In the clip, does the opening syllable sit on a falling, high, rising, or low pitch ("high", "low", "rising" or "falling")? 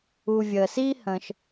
low